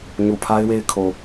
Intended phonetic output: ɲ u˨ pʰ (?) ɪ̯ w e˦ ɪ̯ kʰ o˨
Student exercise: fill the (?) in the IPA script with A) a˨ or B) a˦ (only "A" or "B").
B